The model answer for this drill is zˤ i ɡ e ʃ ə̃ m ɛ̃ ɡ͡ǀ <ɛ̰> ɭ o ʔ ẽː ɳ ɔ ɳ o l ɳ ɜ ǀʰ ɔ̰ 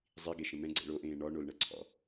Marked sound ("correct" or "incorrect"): correct